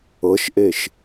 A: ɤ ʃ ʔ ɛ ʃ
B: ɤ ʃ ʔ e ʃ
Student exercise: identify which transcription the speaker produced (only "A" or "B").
B